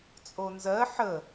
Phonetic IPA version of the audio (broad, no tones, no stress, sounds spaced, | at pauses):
t͡sʼ o n z ɜ ħ ə